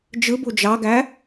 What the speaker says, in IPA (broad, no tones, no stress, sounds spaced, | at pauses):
d͡ʒ ɯ b u d͡ʒ ɑ ɡ æ